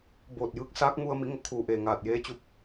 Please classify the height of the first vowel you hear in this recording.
mid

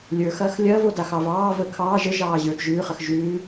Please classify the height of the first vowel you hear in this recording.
mid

